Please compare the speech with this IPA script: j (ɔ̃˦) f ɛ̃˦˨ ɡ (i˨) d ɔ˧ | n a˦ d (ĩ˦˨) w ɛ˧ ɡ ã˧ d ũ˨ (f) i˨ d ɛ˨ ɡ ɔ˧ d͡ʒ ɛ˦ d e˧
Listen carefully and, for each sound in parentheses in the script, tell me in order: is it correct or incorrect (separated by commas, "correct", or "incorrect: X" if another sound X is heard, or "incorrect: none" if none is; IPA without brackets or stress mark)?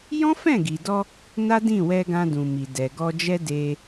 correct, correct, correct, incorrect: m